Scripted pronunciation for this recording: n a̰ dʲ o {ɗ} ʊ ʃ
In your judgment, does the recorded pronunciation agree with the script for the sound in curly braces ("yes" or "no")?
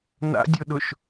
yes